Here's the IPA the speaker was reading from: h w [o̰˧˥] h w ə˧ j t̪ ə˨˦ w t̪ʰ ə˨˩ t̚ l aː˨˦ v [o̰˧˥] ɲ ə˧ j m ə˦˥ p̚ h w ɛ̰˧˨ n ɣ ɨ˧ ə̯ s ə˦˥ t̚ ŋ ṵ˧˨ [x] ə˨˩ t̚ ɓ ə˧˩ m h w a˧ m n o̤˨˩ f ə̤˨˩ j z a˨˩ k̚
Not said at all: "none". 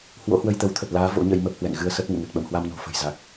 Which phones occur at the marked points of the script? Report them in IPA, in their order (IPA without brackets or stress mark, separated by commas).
o̰˧˥, o̰˧˥, ŋ